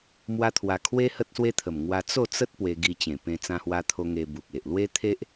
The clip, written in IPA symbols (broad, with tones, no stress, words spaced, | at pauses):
mwa˦t̪ʰwa˧ kʰwe˦ hə˦t̚swe˦t̪ʰə˨˩m ŋwa˧ t͡so˥˧t͡sə˦t̚ pwe˧ɡi˧t͡ɕẽ˨˩pẽ˧ t͡sã˧hwa˧t̪ʰo˧ ŋe˧bu˨k̚ e˨ʔlwe˦t̪ʰe˦ʔ